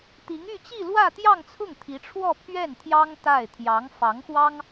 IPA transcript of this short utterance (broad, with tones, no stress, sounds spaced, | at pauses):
t̪ i˧˥ ŋ y˥˧ t͡ɕ i˥˧ l w ä˥˧ t̪ j ɑ˥˧ ŋ t͡sʰ ʊ˥˩ ŋ t̪ʰ i˧˥ ʈ͡ʂʰ w ɔ˥˧ pʰ ɥ ɛ˥˩ n t̪ʰ j ɑ˥ ŋ t̪ a˥˩ ɪ̯ t̪ʰ j ɑ˧˥ ŋ f ɑ˧˥ ŋ x w ɑ˥ ŋ